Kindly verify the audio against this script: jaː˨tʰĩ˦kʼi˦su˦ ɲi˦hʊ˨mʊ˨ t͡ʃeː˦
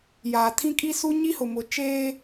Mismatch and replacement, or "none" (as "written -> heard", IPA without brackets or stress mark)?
none